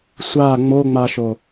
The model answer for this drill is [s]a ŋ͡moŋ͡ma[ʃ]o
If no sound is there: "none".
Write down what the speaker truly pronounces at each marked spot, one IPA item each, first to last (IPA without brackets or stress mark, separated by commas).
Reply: sʷ, ʃ